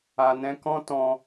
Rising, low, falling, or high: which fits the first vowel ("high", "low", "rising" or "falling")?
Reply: low